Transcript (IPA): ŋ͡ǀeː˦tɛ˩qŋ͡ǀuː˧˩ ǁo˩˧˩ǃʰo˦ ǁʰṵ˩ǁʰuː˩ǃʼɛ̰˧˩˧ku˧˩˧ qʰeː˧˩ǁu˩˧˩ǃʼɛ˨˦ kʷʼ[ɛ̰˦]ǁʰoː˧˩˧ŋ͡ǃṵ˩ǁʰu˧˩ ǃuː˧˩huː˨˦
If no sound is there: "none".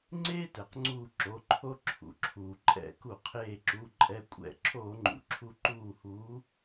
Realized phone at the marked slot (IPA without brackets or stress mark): ɛ̰˧˩˧